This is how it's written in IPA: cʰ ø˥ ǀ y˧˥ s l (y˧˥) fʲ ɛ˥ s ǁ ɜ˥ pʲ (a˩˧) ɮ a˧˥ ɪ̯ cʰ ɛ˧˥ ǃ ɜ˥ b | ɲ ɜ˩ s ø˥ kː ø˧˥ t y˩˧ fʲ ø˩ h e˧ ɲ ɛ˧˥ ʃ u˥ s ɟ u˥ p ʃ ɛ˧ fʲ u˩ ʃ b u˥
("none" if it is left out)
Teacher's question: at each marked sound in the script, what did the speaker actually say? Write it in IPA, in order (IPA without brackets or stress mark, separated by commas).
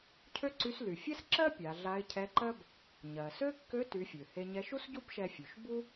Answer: y˩, a˩˧